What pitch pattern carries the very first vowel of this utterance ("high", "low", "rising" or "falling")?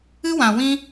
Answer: high